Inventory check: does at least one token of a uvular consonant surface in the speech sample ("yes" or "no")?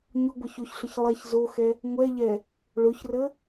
no